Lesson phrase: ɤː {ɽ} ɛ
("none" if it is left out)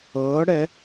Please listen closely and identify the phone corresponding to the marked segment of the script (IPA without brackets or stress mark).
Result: ɽ